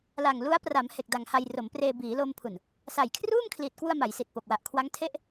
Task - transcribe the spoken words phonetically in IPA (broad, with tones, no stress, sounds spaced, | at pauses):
l a˨˩ ŋ l u˦˥ a̯ p r a˩˦ m h e˨˩ k̚ d a˨˩ ŋ h a˧ j r o˩˦ m p r eː˧ b iː˩˦ l o˧ m pʰ u˨˩ n | s a˨˩ j kʰ r uː˥˩ m kʰ l i˨˩ t̚ k w u˧ a̯ m a˩˦ j s i˨˩ t̚ p o˨˩ k̚ w a˨˩ ʔ kʰ w a˦˥ ŋ tʰ e˦˥ ʔ